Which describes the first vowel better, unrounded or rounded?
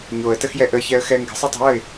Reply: rounded